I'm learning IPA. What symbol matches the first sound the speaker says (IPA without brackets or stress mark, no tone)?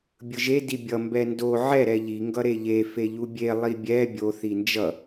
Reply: bʲ